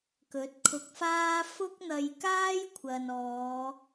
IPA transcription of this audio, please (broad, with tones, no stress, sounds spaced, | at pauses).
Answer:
k ɵ˨˥ t̚ kʰ ʊ˧ k̚ f aː˥ f ʊ˥ k̚ n̪ ɐ˧ j k aː˥ j kʷʰ ɐ˨ n ɔː˨˧